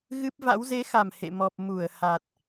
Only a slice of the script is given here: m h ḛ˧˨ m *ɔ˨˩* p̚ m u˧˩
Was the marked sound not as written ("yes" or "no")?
no